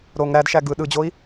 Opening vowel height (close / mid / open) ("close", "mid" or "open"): mid